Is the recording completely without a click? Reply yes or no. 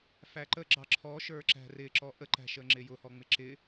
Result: no